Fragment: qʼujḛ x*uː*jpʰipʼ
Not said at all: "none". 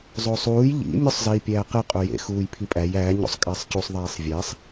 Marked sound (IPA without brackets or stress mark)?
uː